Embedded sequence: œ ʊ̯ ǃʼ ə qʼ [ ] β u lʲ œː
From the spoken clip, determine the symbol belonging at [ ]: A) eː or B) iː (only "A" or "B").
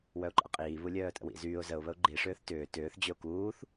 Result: B